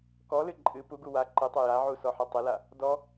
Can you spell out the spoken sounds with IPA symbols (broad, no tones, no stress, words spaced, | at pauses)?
kɔlɨ ǃʼɨ puɡu wa ǃɨtˤɐ jaʕu sɔħɐtˤɪla | dɔ